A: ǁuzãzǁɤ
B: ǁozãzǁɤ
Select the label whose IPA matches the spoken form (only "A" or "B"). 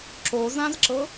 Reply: B